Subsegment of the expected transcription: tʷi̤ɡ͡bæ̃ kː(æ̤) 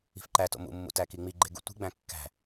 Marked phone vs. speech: correct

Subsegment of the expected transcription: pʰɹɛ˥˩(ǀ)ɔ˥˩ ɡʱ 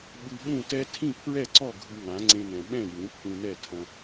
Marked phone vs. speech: correct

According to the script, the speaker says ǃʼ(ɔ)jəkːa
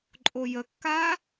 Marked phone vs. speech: incorrect: o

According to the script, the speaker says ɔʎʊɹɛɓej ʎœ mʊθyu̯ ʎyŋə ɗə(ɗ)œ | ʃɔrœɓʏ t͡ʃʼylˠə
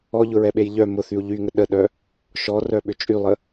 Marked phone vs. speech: correct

